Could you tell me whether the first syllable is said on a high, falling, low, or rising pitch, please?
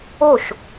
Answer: falling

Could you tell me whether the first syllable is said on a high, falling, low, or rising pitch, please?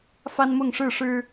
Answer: high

